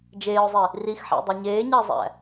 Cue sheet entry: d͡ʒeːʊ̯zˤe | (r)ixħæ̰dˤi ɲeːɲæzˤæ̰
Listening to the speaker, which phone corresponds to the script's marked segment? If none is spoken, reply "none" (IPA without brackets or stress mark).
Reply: r